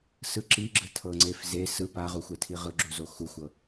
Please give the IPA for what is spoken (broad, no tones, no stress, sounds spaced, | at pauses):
s ɯ ǁ i ɡ͡ǁ ɯ tʰ ɤ ŋ͡ǀ e f z e s ɯ p a ʁ u xʷ ɛ tʰ i ʁ ɯ ɡ͡ǁ u z o x u xʷ ɤ